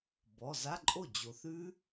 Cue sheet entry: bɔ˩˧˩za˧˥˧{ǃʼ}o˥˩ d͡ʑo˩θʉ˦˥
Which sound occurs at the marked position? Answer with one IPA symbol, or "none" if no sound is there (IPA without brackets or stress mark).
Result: ǃʼ